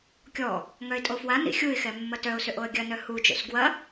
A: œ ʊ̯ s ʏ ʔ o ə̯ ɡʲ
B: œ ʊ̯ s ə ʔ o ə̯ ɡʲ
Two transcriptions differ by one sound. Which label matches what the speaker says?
A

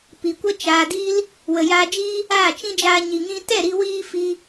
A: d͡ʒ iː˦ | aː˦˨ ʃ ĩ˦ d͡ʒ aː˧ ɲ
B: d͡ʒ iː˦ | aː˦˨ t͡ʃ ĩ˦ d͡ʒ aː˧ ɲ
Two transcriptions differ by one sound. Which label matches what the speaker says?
B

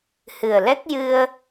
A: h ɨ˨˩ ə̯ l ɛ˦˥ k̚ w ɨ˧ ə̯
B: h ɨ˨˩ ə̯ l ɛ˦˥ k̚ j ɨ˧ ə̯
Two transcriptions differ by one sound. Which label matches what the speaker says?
B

